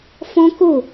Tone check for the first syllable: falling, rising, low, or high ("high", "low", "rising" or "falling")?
high